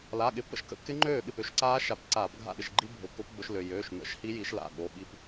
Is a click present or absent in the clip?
present